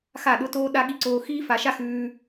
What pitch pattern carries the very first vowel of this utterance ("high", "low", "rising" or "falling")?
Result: falling